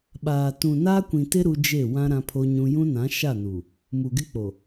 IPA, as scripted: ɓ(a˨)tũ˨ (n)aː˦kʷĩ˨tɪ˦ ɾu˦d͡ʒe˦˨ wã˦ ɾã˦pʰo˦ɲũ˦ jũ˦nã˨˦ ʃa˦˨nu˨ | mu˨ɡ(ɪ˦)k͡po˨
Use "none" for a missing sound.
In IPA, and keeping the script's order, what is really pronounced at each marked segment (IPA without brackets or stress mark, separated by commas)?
aː˨, n, ɪ˦